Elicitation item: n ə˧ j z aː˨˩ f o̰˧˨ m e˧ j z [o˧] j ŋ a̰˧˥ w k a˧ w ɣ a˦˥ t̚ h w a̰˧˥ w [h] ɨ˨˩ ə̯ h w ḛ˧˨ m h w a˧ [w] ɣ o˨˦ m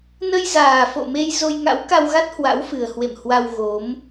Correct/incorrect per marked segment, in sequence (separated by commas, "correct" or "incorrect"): correct, incorrect, correct